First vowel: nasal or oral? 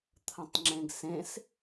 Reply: nasal